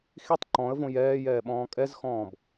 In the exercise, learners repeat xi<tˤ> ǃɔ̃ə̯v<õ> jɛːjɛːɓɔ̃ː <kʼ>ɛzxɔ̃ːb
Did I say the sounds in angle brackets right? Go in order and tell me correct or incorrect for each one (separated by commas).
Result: correct, correct, correct